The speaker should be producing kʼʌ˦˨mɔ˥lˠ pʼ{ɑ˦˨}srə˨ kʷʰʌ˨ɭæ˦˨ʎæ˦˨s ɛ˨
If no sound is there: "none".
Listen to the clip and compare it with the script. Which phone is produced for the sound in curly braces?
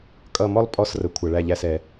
ɔ˦˨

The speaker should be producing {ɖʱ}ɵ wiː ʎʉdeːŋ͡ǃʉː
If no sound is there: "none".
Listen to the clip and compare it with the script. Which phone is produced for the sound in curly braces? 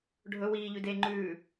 ɖʱ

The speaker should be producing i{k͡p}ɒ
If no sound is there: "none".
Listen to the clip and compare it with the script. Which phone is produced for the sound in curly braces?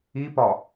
p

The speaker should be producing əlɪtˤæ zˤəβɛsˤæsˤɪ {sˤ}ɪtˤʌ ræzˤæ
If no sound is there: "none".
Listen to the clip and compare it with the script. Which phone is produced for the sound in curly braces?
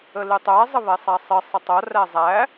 sˤ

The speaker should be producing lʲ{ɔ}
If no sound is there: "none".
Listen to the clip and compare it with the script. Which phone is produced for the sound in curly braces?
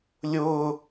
ʊ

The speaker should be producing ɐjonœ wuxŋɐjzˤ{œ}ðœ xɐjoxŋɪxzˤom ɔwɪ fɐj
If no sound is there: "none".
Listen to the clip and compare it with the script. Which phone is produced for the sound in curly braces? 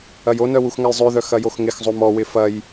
ø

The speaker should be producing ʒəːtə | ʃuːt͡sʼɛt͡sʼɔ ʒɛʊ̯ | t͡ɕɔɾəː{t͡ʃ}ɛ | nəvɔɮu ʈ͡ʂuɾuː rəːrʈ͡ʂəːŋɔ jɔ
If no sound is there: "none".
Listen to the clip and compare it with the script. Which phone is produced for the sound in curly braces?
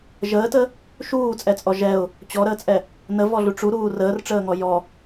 t͡sʼ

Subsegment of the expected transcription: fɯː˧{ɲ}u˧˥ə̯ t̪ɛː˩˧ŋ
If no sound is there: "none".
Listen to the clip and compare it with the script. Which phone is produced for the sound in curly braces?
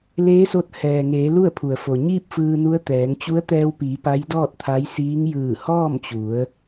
n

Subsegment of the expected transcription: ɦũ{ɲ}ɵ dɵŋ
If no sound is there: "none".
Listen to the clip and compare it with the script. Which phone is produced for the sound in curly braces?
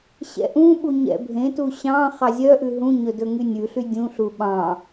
ɲ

